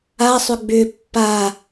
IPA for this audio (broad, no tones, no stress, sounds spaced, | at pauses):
a sˤ ʏ ɡ͡b ʏ pː a